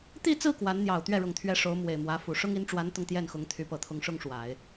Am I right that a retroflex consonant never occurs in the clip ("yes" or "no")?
no